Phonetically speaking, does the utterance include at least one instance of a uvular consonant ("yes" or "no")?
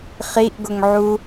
yes